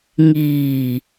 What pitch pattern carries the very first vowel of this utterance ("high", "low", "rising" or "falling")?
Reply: low